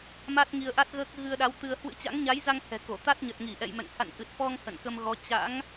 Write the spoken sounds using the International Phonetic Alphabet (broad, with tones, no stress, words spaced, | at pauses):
ma˦˥t̚ŋi˧ə̯ʔa˦˥t̚ɣəː˦˥k̚ ɣɨ˧ə̯ɗa˨˦w t̪ɨ˧ə̯ hwɨ̰˧˥t͡ɕa̰˧˥ŋɲa˨˦jza˧ŋ hɛ̤˨˩ko˧˩ t̪a˦˥t̚ɲə˨˩t̚ŋi˧˩ ʔɛ̰˧˨jmɛ̰˧˨ŋ ha̰˧˨nʔɨ˨˩t̚ fɔ˧ŋ hə̰˧˨nkə˧mɣɔ˨˦ t͡ɕa̰˧˥ŋ